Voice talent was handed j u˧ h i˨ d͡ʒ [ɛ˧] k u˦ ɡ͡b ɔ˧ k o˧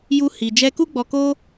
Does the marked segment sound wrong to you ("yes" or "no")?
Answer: no